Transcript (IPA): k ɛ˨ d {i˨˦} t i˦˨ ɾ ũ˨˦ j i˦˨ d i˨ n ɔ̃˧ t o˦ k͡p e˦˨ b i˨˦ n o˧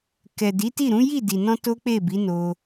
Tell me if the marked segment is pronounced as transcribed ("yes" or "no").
yes